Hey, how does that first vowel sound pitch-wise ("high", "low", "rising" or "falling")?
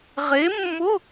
rising